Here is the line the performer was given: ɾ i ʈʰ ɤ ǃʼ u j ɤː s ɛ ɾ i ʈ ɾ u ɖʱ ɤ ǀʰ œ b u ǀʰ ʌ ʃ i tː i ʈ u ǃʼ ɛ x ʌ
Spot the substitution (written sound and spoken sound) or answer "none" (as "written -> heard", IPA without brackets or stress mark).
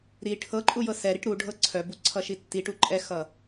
ɤː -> ɤ